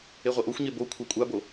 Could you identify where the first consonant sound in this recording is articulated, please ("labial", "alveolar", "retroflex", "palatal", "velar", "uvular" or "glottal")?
uvular